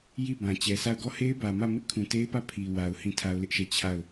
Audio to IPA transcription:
j i˦˨ b ã˨ t͡ɕ ɛ˨ sʰ a˦˨ ʊ̯ ɡ ɔ˦˨ h e˦ ɪ̯ b ä˨ m ä˦˨ m ɪ˦ ʔ kʰ ũ˨ t e˦ ɪ̯ p ä˦˨ pʰ i˨ w a˨ ʊ̯ h ĩ˦˨ tʰ a˦ ʊ̯ l ɪ˦ ʔ ʃ ɛ˦˨ t͡ɕʰ a˦˨ ʊ̯

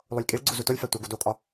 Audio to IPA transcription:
lˠ o lʲ kʼ i ɭ ɡ͡ǀ u z u t o lʲ f æ tʷ æ ɡ u d o kʼ ɒ

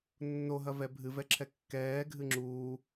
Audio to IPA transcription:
nː o ɦ ɐ v ɛ bʱ ɨ v ɛ ǁʰ ɛ kː ɛː ɡʱ ɨ ŋ͡ǁ uː

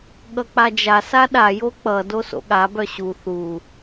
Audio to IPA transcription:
ɠ ʌ k͡p a d͡ʒ a s a ɗ a j o k͡p ʌ d o s o̰ ɠ a b œ ɕ u θ u

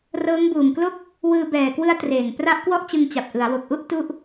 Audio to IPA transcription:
r ɤː˦˥ ŋ b uː˨˩ m k l o˥˩ k̚ | w ɯː˧ b ɛː˨˩ k w ɯ˦˥ a̯ t r eː˨˩ ŋ p r a˦˥ ʔ k w ɔ˥˩ ʔ t͡ɕ ɯ˧ ŋ t͡ɕ a˨˩ p̚ ʔ ɯ˩˦ a̯ w o˨˩ k̚ ʔ u˥˩ ʔ t u˥˩ ʔ

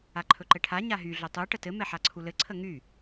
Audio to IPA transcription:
a ǃʰ ɵ ǃ ɘ ʈʰ a ɲ a ɦ y ɮ ɵ tˤ u ʈ ə t ɘ m ɛ ħ a ǀʰ u l ɘ ǀʰ ə ŋ y

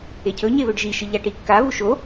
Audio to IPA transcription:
e cʰ ɵ ɲ e β ɵ ɖ ʒ i ʃ ɨ ʎ a ʈ i kː a β u ʃ o

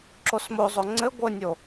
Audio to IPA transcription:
ǁ o s m o zˤ o ŋ͡ǀ ɘ ɡʷ ɘ nʲ o

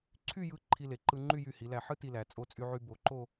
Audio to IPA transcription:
ǀʰ y˥˧ j ɯ˧ ǃʰ i˧ l e˩˧ ǃ ɯ˧ ŋ͡ǃ y˥˧ j y˧˩ h i˩˧ l æ˧˩ ħ ɯ˥ t i˧ l æ˩˧ t͡sʼ o˧ t͡sʼ y˧ ʕ y˧ b o˩˧ ǃ o˥˧

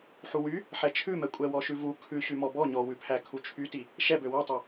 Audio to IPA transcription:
ħ u w y | ħ ɛ t͡ʃʰ ʉ m ɛ kʷʼ ɛ w ɔ ʃ ʉ v u kʰ ʉ ɕ y m ɔ b ɔ ɲ ɔ w ʉ pʰ æ kʰ u t͡ʃʰ y t i | ʃ ɛ b ø w u tˤ ø

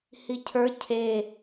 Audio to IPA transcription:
h i cʰ ə˞ cʰ e

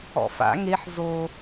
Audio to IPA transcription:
ɔ̰ f a̰ ŋ e ħ z o

